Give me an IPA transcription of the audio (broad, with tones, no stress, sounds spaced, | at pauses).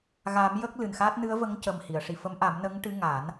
ɣ a˨˩˦ m j ə˦˥ k̚ l ɨ˨˩ n x a˦˥ t̚ n ɨ˧˥ ə̯ v ə˧˥ ŋ c ə˨˩ m h i˨˩˨ ə̯ ʂ i˨˩ f ə˧˥ m ʔ a˨˩˦ m n ə˧˥ ŋ ʈ ɨ˧˥ ŋ a˨˩˦ n